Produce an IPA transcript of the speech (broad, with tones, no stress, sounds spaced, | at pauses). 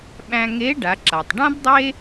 ɓ æ̃˧ ŋ e˧˥ ɖ a˩˧ ǁ a˩ tˤ ɖ ã˥ b dˤ e˥